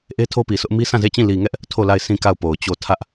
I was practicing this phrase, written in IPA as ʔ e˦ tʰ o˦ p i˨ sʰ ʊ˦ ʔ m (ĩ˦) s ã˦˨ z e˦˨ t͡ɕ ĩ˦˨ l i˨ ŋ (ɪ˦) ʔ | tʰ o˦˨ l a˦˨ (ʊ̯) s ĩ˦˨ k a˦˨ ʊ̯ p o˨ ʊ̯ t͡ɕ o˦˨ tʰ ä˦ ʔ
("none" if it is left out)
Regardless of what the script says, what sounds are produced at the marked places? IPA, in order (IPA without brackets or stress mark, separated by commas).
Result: i˦, ɛ˦, ɪ̯